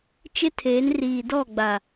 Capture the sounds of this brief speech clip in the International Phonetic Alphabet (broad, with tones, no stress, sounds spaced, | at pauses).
t͡ʃ ɪ˦ tʰ eː˨˦ n r iː˨ d ɔ˦˨ ɡ͡b a˨